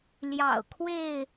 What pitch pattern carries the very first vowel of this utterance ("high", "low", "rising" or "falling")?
low